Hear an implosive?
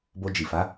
no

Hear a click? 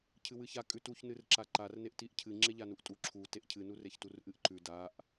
yes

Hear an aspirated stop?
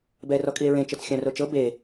no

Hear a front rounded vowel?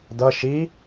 no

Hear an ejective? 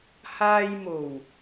no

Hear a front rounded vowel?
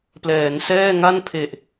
no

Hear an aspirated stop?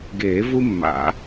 no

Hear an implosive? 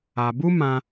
no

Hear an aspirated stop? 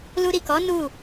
no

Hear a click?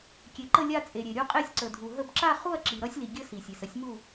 yes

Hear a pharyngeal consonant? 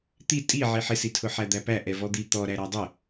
yes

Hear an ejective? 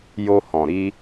no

